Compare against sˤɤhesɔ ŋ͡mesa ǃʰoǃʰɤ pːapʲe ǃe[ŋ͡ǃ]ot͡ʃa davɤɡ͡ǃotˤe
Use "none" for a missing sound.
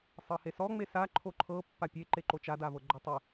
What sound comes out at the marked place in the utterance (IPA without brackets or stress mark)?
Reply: ǃ